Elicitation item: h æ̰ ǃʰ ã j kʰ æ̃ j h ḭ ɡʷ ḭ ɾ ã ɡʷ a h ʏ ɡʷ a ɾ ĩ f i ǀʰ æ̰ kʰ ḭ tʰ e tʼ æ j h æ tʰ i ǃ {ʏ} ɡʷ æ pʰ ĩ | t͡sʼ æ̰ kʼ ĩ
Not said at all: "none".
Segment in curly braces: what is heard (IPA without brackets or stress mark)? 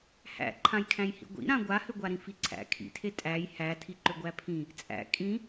ʏ